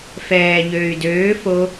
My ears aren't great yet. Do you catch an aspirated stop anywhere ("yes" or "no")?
no